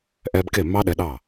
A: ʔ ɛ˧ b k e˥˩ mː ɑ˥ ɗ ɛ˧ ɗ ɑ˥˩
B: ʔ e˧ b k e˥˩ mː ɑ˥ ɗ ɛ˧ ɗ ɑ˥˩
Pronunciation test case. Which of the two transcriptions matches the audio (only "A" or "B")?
A